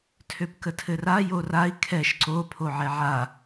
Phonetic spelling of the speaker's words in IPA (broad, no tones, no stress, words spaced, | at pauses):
tʰøpkətʰɘra jorai̯ kʰɛʃ ǀo pʰoʕɛʕa